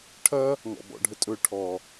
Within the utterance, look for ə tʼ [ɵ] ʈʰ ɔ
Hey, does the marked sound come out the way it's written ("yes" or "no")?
yes